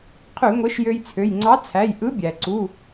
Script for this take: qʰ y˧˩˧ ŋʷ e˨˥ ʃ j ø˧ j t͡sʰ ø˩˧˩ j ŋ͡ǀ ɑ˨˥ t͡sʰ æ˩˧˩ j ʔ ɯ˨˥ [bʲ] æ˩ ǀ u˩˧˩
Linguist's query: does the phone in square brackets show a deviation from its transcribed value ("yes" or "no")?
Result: no